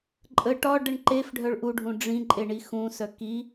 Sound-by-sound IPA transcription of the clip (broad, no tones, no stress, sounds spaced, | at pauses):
ǃʼ ə ʈ ɒ ɖ ə ɳ ǃ e f ɖʱ œ ɭ ʔ u ɖʱ ũ ɖ͡ʐ ĩ ǃʼ e ɳ i x ũ s œ k i